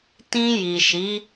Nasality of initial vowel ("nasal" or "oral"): nasal